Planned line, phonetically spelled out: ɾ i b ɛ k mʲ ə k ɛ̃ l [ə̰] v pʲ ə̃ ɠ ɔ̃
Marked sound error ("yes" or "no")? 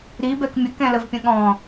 yes